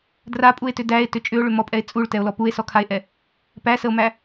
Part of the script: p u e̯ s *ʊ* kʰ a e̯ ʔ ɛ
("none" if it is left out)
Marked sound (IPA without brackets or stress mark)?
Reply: ɔ